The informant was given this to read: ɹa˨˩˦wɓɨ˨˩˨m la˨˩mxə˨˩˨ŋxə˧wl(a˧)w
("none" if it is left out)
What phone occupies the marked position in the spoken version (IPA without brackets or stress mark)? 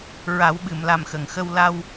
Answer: a˧